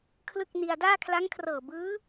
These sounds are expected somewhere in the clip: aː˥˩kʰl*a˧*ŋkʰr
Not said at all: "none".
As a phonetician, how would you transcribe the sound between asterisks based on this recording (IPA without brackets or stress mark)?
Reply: a˦˥